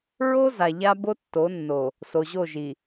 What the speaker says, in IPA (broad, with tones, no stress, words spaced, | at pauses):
ɹo˦ za˨ʎa˦ bo˦tːo˨˦nːo˨ | so˨ʑo˦˨ʒi˨